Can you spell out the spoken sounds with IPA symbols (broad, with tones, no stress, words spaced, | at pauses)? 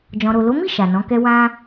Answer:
d͡ʒɔ̃˨ɾo˨lo˨˦mi˦˨ ʃa˨nɔ̃˨˦kɛ˦ wã˧